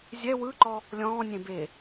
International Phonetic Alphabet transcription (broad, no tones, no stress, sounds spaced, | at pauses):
zʲ ɛ w ɯ ǃ ɔ | lʲ ɔ̃ː nʲ ẽ b e